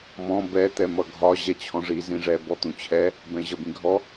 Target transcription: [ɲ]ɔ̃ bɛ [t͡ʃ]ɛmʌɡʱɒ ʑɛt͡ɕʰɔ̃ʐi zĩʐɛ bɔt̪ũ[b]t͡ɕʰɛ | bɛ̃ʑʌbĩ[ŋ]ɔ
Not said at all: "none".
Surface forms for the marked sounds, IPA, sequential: m, t̪, none, ɡʱ

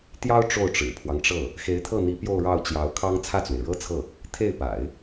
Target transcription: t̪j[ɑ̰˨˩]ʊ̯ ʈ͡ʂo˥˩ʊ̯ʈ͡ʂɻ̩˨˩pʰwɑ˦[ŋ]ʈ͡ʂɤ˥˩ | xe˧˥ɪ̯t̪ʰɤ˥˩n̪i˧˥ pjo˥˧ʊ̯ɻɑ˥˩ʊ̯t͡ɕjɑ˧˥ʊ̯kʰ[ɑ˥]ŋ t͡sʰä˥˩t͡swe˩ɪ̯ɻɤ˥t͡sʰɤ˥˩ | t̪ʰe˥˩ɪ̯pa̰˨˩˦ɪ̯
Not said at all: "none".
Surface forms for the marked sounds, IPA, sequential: ɑ˥, ŋ, ɑ˥

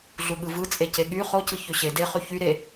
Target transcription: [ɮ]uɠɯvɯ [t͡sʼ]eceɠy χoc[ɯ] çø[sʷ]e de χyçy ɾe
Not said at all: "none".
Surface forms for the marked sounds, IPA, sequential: ɮ, t͡sʼ, ɯ, ɕ

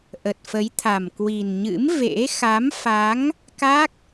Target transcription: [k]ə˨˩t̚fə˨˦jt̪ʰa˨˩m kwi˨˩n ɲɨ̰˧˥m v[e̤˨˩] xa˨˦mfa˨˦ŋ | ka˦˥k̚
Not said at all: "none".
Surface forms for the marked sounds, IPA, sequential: ʔ, ḛ˧˥

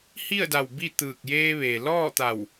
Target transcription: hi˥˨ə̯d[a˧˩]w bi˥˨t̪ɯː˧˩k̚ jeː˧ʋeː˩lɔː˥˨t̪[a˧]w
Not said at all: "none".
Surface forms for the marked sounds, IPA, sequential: a˧˩, a˧˩

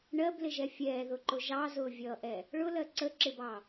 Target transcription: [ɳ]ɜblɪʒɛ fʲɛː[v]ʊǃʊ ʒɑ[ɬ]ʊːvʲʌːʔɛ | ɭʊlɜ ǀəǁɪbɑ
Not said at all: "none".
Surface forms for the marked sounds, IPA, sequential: ɳ, ð, z

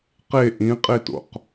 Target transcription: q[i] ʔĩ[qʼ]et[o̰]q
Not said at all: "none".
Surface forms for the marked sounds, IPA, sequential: e, qʼ, o̰

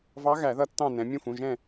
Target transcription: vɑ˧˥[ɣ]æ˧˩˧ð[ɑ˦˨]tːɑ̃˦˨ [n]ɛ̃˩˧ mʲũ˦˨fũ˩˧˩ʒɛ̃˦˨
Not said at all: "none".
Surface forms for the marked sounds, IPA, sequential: ɣ, ʌ˦˨, n

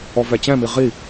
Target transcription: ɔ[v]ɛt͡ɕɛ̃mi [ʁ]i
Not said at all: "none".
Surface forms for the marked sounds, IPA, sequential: v, ʁ

